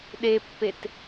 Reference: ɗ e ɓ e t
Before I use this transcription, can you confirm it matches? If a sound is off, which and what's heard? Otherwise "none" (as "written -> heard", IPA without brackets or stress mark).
ɓ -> pː